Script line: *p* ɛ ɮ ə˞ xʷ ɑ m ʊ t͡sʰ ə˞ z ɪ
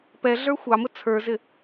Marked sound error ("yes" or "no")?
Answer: no